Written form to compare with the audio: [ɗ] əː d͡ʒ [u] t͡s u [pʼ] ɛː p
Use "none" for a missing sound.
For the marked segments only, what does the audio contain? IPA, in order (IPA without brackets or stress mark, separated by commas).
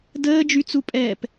d, y, pʼ